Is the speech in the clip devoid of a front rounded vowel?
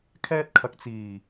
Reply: yes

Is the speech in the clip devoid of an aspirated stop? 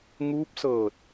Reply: yes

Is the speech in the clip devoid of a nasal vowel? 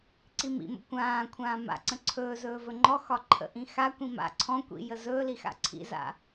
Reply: no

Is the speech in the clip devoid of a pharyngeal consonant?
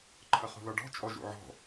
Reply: no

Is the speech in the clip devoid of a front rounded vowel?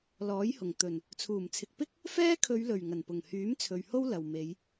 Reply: no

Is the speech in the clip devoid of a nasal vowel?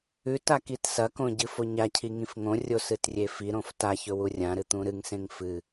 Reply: no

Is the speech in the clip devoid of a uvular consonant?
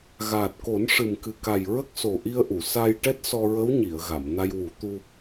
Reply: yes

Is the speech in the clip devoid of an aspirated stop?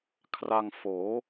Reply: no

